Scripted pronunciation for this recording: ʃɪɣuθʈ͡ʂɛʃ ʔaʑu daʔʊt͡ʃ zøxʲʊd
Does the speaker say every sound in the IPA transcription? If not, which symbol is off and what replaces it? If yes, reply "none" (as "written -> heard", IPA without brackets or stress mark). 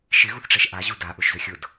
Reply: t͡ʃ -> ʃ